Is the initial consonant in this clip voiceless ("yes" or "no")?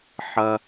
yes